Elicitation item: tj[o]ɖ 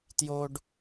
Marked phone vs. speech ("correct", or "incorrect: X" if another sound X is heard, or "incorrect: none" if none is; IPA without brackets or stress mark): correct